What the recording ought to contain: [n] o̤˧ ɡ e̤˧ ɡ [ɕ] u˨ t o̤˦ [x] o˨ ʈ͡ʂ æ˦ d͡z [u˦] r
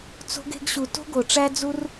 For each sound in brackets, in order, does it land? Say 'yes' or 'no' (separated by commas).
no, yes, no, yes